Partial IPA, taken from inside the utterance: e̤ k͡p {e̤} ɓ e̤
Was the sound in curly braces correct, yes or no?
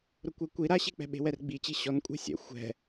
no